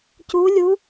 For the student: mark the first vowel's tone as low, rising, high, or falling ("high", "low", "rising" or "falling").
rising